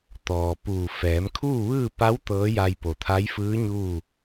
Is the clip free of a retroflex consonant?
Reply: yes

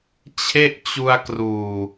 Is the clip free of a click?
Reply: yes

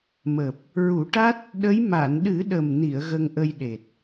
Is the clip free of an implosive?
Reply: no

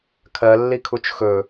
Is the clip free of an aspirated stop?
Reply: no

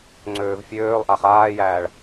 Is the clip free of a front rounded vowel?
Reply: no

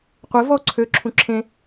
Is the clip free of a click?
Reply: no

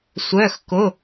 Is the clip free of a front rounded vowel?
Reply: no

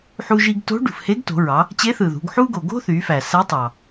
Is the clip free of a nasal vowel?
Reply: yes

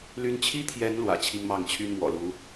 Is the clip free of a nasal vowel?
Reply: yes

